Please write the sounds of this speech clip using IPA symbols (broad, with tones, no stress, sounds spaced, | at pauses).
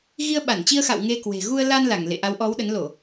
ɣ i˧ ə̯ ɓ a˧˩ n t͡ɕ i˧ ə̯ x a̰˧˨ w ŋ e˧ k w e̤˨˩ ɣ u˧ ə̯ l a˧ n l a˧˩ ŋ l ḛ˧˨ ʔ a˨˦ w ʔ ɔ˨˦ w ɗ ə˨˦ n l o˧˩˨